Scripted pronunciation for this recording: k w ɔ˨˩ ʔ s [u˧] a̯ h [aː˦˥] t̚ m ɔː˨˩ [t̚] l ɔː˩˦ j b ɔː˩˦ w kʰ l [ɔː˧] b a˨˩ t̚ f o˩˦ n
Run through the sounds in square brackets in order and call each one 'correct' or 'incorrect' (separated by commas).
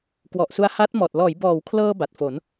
correct, correct, correct, incorrect